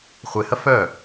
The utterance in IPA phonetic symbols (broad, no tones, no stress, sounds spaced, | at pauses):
χʷ e h ɐ f œ